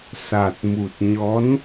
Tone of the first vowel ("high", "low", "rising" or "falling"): low